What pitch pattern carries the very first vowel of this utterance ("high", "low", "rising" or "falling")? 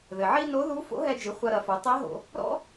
low